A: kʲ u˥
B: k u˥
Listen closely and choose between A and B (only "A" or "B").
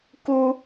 B